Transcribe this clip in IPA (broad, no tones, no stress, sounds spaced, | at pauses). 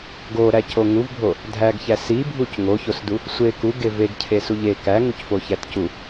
ɡ o ɾ æ c o ŋ u v bʱ o | dʱ æ ɡ ç æ s i bʱ u c ŋ o ç o s d u | sʷ e k u ɡ e v e ɡ cʰ e s u ʎ e k æ ŋ u c f o ç æ t c u